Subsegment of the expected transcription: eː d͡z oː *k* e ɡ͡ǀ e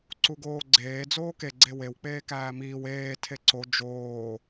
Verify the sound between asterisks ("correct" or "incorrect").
correct